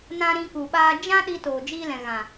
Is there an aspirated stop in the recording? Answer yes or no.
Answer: no